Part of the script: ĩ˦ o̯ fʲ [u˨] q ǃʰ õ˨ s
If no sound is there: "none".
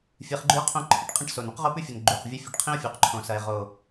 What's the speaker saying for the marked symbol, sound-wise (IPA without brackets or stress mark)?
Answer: u˨